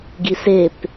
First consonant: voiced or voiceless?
voiced